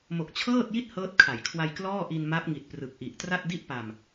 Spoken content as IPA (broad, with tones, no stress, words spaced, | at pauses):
mo˨˩k̚t͡ɕʰɤː˥˩t̚ji˥˩t̚ hɤː˦˥t̚kʰa˩˦jkʰwa˧j klɔː˥˩ʔi˧nma˦˥p̚ ŋi˨˩t̚ prɯ˨˩k̚ʔi˨˩ʔtra˥˩t̚ di˥˩ʔpa˧m